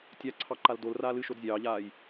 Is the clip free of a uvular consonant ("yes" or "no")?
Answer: yes